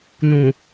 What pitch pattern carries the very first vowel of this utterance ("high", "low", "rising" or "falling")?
low